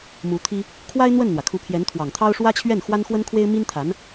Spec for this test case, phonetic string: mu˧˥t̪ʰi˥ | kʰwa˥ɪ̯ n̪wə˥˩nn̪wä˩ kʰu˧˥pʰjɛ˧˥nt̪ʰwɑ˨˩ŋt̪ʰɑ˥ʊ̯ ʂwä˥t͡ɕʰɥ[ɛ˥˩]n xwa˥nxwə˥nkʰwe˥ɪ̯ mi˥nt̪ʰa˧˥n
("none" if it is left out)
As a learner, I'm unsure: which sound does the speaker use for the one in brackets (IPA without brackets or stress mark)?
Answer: ɛ˥˩